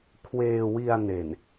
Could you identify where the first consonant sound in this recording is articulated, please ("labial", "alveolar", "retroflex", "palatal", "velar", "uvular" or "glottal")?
velar